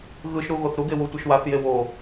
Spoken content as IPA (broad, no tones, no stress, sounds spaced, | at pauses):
ɣ ɯ ʃ ɾ u ɣ o θ ɾ u ɡ e w u tʷ ɛ ʃ w a θ j e w o